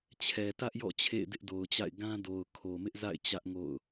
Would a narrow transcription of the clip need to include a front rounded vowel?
no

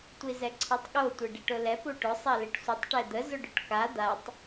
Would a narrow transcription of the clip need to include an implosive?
yes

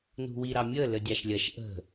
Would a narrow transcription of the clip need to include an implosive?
no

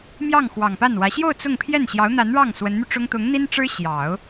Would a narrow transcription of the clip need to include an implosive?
no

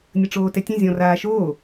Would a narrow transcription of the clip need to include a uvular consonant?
no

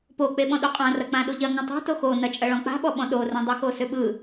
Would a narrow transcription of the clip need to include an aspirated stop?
no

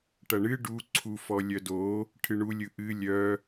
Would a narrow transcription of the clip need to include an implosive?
no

